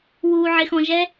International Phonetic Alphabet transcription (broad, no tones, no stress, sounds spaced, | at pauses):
w u ʕ ɪ x ɔ̃ ʒ ɛ